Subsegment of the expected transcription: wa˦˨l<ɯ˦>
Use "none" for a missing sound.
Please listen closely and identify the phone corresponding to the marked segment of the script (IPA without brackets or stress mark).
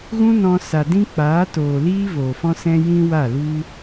u˦